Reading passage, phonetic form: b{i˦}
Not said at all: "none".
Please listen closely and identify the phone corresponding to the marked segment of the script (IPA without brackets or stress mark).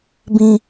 ĩ˦